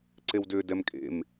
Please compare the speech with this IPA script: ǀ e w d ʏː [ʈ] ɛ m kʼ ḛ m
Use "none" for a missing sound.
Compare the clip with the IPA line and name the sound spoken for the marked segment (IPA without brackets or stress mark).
d